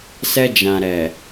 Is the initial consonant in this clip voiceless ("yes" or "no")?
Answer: yes